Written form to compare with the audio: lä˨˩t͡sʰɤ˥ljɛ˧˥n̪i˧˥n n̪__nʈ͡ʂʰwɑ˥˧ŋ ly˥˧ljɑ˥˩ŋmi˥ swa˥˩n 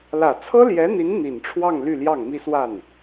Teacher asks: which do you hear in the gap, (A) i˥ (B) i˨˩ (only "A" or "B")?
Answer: B